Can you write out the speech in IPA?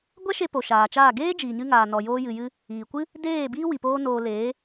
ɡʷɛ˦ʃe˧ po˨ʃaː˨t͡ʃaː˦˨ ɡeː˦d͡ʒiː˨ɲɨ˧ŋaː˨ nɔ˨joː˧jɨ˨jɨ˧ | iː˨kʷɨ˦ | deː˦˨biː˦ wi˨poː˦noː˧ leː˨˦

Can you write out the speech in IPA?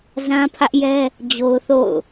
zã˦pʰä˦ʔjɛ˦ | d͡ʑo˦ʊ̯θo̰˦˨ʊ̯

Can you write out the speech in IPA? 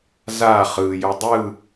za χɯjɵ dˤɯ

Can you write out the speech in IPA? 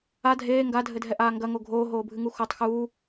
a dʱeː ŋɡadʱɘdʱɛʔaː ŋɡɐŋo ɡʱoːɦoːbʱɨŋu xotˤ xuː

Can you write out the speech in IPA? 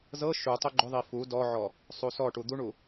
zɤ ʃutˤʏ ɡ͡ǃʏðˤi fu dɔʕɔ | sˤusɔʈu d̪uɳu

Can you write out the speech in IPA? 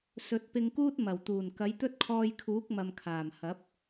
sɵ˨˥t̚pɪ˧ŋkuː˥t̚ mɐ˨˩wt̪uː˨˩n kɐ˨˥jt̪ɵ˥t̚kʰɔː˧jkʰuː˨˥k̚ mɐ˨mkʰaː˨˩mhɐ˨˥p̚

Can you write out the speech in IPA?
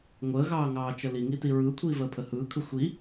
ŋʷəːɣɑːŋɑːt͡ʃə liŋiti ɹɯːkʷʰiːvəːpʰə hɯːkʰɯ xʷi

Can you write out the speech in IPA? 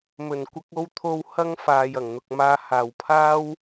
mɵ˨˩nkʷɐ˧k̚ o˧w t̪ʰo˧w hɐ˧ŋ faː˨jɐ˨˩ŋ n̪ʊ˨k̚maː˧haː˨w pʰaː˥w

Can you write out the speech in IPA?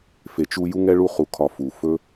fe˨t͡ʃu˦ ju˥ŋɛ˥ɭu˦ χu˨kʰɒ˨ fu˩ fɵ˥

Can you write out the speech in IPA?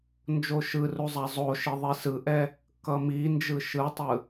nd͡ʒoʃɯru zˤazˤoʃi ðˤisɯʔɛ | kʌmind͡ʒɯ ʃɯtˤɯ

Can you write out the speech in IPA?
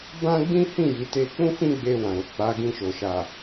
bã˦ɡ͡bĩ˦hĩ˦˨ ji˨˦ te˧k͡pũ˦ fĩ˦ɡ͡be˧wã˨ɾo˨ k͡pa˨˦ɡĩ˧ʃo˨ʃa˨

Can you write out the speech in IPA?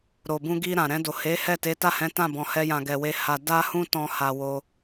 ɾo˨bũ˧ɡi˧ ɾã˨ ɾɛ̃˧do˨ he˨˦hɛ˦˨ te˨˦ta˦˨hɛ̃˨˦ tã˦˨bɔ̃˨ hɛ˧jã˨ɡɛ˨we˧ ha˧ da˦hũ˦tɔ̃˧ ha˧wo˧

